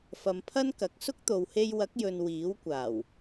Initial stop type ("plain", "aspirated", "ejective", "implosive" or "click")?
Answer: aspirated